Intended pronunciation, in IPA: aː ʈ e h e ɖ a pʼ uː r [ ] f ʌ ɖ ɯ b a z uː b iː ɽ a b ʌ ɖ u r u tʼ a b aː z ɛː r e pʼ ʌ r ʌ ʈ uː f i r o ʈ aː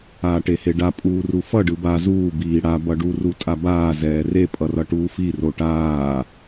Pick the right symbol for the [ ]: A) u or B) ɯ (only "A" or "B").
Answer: A